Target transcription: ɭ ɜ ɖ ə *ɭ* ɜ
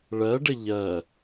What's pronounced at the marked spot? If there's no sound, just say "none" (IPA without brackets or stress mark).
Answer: ʎ